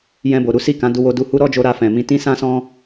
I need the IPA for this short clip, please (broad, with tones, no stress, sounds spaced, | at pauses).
j ɛ̃˧ b o˨ ɾ u˨˦ s i˦˨ k ã˨˦ d u˧ w o˧ d u˧ h u˦ ɾ ɔ˦ d͡ʒ o˧ ɾ a˧ f ɛ̃˨ m ĩ˧ t ĩ˦ s ã˦ s ɔ̃˦